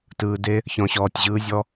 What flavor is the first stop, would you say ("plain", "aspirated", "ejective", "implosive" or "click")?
plain